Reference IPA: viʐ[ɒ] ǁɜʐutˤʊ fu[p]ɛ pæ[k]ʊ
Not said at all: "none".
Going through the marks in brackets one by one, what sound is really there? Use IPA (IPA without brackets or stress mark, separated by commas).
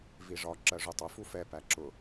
ɒ, f, ǁ